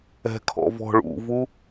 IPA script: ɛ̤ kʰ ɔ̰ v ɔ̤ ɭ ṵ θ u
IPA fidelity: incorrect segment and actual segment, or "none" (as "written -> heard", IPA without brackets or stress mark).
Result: θ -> v